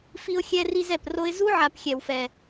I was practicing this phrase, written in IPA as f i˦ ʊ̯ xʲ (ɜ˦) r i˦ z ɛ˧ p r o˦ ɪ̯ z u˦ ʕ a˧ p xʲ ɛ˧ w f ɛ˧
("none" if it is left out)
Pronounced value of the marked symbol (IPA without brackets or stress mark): ɛ˦